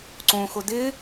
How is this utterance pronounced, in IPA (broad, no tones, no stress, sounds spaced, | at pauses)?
ǀ õ x ʊ d ɪ